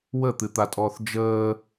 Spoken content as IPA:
w ə t̪ ɨ t̪ a tʼ ɔː θ d͡ʒ əː

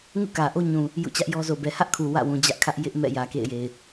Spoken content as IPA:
ŋ ṵ˦˨ k ä˨ ʔ o˦ ɲ ũ˨ | j ṵ˦˨ t͡ɕ ä˦ ʔ j ɔ˦ z o˨ b ɛ˨ h ä˦ ʔ kʰ u˨ w ä̰˦˨ w ũ˨ d͡ʑ ä˦ ʔ kʰ ä˦ ʔ j ɪ˦ ʔ m ɛ̰˦˨ j ä˨ k ḛ˦˨ ɪ̯ j e˨ ɪ̯

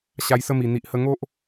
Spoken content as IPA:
ɕ a˧ j s ə˦ m i˨˩ n̪ i˨ ʔ h ə˧ ŋ o˦ ʔ

